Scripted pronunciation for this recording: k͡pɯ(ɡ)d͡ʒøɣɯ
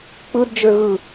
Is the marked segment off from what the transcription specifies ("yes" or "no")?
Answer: yes